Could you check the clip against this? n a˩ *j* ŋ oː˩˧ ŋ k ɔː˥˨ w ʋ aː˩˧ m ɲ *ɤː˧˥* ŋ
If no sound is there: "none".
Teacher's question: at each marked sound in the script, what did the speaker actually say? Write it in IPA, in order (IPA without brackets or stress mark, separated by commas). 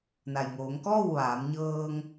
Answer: j, ɤː˧